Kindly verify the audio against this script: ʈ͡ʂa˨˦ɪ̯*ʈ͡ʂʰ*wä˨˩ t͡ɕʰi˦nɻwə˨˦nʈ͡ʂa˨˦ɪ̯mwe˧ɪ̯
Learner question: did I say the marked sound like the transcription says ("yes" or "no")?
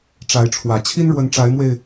yes